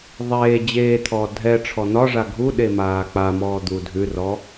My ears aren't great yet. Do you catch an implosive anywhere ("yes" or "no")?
yes